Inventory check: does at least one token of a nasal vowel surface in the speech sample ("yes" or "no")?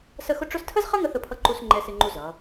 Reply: no